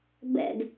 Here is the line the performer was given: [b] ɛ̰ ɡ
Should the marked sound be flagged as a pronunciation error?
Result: no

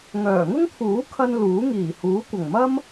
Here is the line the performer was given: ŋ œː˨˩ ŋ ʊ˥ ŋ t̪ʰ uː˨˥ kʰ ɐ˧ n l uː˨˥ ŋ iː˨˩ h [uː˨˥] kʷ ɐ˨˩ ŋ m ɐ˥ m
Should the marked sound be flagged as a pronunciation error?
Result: no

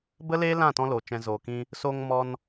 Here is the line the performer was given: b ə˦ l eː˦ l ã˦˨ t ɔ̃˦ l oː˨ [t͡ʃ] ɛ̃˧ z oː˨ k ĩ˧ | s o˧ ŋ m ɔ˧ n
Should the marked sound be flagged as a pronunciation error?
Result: no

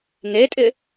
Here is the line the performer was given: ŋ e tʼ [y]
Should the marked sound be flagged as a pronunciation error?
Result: yes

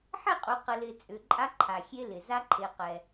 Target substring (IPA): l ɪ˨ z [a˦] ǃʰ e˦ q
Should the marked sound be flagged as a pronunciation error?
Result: no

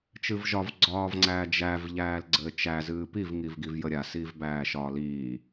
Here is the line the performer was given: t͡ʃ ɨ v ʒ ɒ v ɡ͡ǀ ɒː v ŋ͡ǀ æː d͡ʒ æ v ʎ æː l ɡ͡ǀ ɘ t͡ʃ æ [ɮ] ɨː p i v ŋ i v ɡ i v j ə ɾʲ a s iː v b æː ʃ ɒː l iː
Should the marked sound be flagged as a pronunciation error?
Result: yes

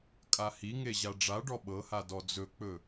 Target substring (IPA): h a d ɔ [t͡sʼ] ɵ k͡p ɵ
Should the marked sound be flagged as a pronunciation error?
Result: yes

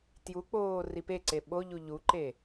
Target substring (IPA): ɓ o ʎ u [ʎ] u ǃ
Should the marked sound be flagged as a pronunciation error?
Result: no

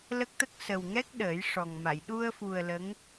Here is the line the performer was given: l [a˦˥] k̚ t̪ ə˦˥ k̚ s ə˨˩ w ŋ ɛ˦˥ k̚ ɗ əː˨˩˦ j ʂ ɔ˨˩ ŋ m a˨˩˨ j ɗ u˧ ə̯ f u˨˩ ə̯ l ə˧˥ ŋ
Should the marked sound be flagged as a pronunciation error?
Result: yes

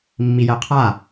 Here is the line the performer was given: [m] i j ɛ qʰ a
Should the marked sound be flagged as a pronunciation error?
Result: yes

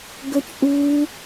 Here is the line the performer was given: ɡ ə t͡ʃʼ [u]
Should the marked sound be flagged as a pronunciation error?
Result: no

